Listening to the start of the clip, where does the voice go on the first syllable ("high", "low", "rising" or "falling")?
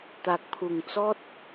low